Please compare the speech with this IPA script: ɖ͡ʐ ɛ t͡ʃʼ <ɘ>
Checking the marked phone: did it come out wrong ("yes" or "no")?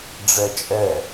yes